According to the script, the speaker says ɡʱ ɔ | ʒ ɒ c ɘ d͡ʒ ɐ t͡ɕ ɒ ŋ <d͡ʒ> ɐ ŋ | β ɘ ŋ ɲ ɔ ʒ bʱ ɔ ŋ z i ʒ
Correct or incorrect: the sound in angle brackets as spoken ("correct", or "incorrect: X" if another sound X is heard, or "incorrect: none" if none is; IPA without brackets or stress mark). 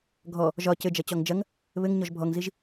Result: correct